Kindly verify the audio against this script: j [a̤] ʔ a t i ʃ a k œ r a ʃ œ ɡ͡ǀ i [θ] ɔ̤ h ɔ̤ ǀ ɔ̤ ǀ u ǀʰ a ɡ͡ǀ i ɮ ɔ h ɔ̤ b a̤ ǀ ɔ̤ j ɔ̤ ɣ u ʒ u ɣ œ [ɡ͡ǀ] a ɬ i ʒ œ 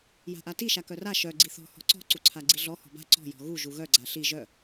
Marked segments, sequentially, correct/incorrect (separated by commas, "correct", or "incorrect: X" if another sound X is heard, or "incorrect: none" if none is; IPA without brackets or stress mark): correct, correct, correct